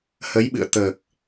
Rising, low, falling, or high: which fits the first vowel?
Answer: rising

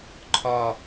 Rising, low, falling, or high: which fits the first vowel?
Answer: falling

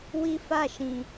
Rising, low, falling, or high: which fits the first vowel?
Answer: high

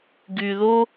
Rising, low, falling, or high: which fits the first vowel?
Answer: low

